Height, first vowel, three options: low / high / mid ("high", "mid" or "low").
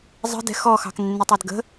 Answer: mid